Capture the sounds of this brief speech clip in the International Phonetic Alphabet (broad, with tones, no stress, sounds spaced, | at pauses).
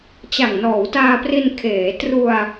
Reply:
t͡ɕ a˨˩ ŋ n ɔː˩˦ w t aː˧ p r i˧ n kʰ eː˩˦ t r u˧ a̯